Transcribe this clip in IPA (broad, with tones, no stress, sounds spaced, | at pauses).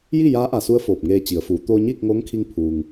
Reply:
j i˥˨ j aː˧˥ ʔ a˧˩ s u˧ ə̯ f oː˧˩ p̚ ŋ eː˧ t͡ɕ i˩˧ ə̯ f uː˩˧ t̪ oː˧ ɲ iː˥˨ k̚ ŋ oː˧˥ ŋ kʰ i˧ ŋ pʰ uː˩ ŋ